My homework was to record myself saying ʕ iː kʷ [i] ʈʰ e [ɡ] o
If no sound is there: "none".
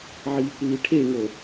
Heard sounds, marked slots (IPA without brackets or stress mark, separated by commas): iː, ŋ